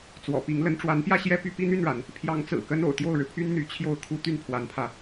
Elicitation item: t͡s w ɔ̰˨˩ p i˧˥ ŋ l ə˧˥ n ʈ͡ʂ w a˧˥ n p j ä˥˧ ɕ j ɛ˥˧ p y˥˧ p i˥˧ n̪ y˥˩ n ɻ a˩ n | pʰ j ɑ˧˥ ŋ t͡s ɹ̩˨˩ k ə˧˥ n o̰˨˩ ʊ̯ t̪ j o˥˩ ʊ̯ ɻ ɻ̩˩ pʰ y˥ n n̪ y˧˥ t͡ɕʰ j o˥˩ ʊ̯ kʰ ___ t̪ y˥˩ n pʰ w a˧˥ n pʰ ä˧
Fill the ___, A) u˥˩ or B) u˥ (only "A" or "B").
B